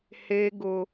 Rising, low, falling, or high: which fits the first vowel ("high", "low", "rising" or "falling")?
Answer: high